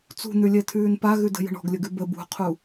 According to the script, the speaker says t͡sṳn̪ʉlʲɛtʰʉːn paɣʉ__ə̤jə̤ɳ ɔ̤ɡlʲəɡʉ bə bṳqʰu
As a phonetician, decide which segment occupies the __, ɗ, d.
d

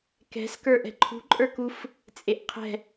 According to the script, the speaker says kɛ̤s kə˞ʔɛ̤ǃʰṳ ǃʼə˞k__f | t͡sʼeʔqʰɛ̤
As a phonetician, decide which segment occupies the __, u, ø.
u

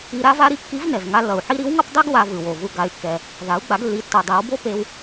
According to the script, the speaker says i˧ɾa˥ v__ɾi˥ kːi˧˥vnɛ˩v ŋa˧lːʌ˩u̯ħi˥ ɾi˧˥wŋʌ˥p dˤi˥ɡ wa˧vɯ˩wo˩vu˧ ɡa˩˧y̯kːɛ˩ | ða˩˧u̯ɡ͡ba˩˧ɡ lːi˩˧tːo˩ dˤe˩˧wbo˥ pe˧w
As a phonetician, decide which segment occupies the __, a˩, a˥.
a˥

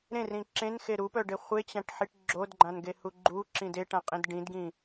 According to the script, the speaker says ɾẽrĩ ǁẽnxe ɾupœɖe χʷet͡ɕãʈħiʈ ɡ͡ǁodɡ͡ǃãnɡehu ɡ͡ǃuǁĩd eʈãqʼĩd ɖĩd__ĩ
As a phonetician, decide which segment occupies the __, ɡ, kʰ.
ɡ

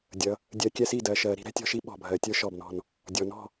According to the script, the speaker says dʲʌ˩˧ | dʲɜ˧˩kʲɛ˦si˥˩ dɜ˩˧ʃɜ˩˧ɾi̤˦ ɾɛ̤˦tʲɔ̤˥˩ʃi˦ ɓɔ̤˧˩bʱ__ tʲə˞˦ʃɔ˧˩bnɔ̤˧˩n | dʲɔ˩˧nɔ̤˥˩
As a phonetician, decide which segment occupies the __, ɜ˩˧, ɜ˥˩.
ɜ˩˧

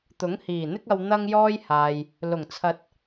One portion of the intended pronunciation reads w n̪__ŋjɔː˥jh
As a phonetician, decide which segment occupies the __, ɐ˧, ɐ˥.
ɐ˥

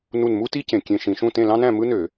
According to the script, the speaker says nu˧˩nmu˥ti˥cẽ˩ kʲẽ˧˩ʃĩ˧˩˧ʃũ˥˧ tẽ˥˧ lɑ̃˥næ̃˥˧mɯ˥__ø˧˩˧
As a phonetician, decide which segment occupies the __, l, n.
n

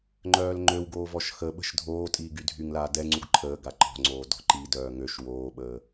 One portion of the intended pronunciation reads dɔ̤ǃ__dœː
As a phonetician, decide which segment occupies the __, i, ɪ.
i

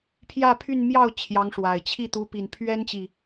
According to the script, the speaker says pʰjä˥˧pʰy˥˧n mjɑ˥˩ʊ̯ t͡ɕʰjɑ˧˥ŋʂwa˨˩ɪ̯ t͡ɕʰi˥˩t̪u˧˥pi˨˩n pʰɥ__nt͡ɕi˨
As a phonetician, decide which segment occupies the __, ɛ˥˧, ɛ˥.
ɛ˥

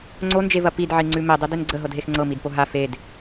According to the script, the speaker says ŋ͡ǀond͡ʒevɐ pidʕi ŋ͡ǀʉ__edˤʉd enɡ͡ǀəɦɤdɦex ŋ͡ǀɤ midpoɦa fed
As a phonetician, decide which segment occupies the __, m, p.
m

